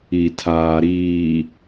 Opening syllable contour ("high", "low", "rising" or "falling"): low